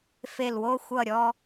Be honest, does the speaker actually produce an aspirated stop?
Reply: no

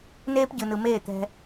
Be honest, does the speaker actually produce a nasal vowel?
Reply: no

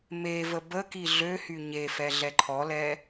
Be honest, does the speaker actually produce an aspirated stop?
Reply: yes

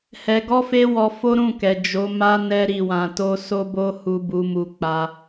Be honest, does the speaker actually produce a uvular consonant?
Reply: no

